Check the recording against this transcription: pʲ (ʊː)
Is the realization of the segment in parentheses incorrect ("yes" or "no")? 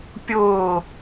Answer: no